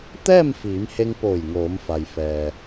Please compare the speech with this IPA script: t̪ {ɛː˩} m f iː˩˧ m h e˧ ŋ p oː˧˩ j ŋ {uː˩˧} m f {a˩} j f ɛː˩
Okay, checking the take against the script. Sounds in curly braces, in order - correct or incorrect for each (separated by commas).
incorrect, incorrect, correct